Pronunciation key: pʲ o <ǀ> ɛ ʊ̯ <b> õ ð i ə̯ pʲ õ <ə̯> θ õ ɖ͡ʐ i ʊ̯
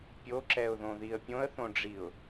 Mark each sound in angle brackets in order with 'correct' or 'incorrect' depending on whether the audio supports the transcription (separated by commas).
incorrect, incorrect, correct